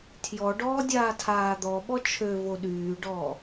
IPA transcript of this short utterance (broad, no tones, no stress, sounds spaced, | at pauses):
tʰ j ɔ ɖ ɔː dʲ aː tʰ aː d̪ ɔ ɓ ɔ t͡ʃʰ ø v o ɗ yː ɖ ɔː